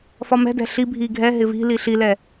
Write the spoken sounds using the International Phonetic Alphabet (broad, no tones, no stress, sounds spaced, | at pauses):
f ɒ m ɛ̤ d ɛ̤ ɬ i bʱ i ɡʱ ɛ ɦ ɪ v i̤ l i ɬ i l ɛ